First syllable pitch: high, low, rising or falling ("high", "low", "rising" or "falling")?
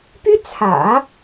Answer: high